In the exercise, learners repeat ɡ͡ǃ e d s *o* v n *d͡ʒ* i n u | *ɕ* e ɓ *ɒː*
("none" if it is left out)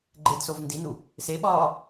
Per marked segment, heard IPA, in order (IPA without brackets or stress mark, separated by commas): o, d, s, ɒː